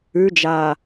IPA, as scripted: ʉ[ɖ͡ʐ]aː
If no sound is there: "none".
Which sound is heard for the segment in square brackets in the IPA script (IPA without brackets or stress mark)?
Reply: d͡ʒ